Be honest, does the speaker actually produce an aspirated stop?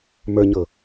no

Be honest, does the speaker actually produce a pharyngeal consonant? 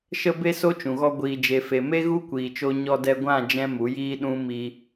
no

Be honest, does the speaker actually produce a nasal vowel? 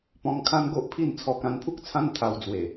yes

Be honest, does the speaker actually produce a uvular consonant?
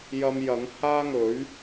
no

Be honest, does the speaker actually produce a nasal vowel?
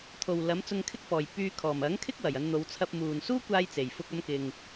no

